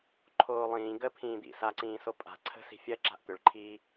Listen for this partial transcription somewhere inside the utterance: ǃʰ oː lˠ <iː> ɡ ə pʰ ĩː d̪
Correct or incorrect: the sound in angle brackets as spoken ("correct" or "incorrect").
incorrect